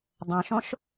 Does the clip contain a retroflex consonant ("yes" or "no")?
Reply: no